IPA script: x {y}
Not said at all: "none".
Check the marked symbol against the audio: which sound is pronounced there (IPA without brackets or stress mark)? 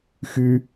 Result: y